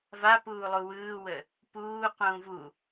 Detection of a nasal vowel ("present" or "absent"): present